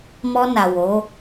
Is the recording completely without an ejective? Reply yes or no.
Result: yes